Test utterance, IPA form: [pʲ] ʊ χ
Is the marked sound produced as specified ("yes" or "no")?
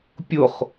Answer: yes